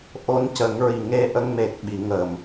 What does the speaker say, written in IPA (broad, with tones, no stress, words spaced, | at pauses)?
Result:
ʔo˧˥ncə˨˩˦ŋɹi˨˩ ŋe˧ʔə˧ŋme˨˩k̚ɓi˨˩˨ ŋə˨˩˨m